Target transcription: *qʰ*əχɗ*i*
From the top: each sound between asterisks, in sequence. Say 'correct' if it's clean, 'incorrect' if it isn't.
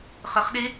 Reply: incorrect: χ, incorrect: e

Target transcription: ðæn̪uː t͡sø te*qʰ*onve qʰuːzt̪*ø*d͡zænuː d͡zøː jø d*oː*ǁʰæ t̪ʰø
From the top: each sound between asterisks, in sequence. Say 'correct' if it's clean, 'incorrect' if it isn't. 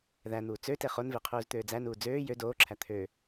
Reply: incorrect: χ, incorrect: øː, correct

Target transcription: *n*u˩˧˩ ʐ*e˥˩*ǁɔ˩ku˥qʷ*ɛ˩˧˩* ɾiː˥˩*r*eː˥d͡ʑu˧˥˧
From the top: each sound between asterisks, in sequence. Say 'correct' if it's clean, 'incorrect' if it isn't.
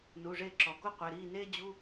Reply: correct, correct, correct, incorrect: n

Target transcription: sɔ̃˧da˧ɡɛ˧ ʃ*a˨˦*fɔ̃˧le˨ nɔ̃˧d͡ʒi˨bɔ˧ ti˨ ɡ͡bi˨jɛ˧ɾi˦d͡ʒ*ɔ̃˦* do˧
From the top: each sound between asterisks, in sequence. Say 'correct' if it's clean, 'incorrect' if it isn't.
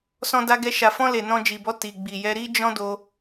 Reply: incorrect: a˨, correct

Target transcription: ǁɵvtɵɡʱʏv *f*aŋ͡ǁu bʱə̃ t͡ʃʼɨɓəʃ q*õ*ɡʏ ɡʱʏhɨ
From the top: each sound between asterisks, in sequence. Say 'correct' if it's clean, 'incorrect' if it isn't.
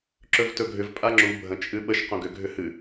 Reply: incorrect: pʼ, correct

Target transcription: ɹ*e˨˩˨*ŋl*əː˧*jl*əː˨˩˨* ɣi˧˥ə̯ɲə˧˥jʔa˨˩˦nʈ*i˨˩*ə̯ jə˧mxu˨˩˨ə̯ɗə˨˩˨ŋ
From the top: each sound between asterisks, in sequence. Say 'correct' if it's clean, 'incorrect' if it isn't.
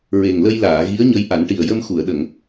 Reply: incorrect: e˨˩, incorrect: ə˧, incorrect: aː˨˩˨, correct

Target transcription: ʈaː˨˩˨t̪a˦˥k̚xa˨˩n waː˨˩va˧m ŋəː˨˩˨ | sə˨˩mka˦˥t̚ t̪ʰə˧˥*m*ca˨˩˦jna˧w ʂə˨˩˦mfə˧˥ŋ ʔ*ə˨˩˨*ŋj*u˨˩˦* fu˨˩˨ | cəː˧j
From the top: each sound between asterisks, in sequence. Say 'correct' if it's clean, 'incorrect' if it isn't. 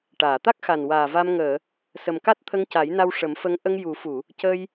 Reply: incorrect: ŋ, incorrect: ə˧, correct

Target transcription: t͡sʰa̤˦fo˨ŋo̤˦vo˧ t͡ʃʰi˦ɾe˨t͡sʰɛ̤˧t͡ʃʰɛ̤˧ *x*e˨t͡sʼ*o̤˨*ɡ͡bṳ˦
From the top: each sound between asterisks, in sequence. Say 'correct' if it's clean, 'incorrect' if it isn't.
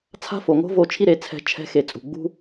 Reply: correct, incorrect: ṳ˨

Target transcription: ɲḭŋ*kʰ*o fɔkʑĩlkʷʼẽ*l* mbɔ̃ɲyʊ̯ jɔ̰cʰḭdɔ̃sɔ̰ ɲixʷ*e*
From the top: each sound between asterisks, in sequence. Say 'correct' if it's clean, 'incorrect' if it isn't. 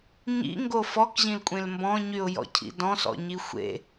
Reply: incorrect: ɡ, correct, incorrect: ḛ

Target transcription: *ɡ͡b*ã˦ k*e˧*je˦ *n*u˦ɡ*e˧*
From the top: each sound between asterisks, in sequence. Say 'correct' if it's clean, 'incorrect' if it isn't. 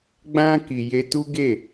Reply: correct, incorrect: i˧, incorrect: t, incorrect: e˦˨

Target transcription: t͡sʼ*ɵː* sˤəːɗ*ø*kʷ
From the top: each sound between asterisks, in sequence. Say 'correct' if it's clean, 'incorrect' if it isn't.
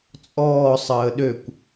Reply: incorrect: ɔː, correct

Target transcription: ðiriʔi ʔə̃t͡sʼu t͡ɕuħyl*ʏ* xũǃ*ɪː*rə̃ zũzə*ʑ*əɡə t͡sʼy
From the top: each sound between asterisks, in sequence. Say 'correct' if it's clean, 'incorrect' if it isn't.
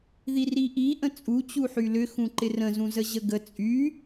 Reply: correct, incorrect: ɪ, correct

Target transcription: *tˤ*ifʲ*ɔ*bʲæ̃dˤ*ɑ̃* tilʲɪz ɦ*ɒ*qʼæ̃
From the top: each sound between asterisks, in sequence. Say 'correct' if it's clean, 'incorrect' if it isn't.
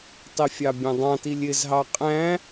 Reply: correct, incorrect: ɑ, correct, incorrect: ɑ

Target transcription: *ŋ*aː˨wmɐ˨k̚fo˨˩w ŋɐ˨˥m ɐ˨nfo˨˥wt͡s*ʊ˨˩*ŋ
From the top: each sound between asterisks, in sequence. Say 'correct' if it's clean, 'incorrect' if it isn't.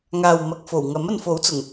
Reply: correct, correct

